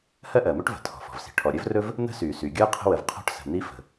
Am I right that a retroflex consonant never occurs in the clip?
no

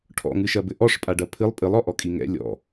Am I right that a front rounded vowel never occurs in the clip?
yes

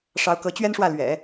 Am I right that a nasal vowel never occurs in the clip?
yes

